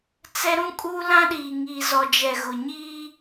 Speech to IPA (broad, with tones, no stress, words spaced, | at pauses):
t͡sɛ˦ɾũ˦kʼuː˦lã˦ ɗiː˨ŋiː˨zɔ˨d͡ʒɛ˨ ɣʊ˨ɲiː˦